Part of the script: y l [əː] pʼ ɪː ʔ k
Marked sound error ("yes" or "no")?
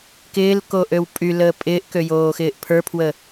no